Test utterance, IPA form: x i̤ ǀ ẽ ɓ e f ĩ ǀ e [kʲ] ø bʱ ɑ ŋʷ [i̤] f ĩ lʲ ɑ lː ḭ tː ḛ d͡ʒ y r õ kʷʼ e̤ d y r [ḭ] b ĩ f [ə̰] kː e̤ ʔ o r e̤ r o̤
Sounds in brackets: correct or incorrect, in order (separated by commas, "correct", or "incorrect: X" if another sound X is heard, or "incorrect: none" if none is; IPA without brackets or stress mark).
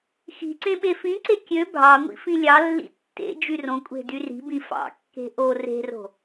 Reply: correct, incorrect: ḭ, incorrect: i̤, incorrect: ɑ̰